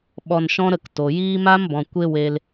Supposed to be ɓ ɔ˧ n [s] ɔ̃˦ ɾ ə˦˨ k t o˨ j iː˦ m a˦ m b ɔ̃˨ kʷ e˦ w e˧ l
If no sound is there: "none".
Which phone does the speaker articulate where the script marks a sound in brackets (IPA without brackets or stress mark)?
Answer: ʃ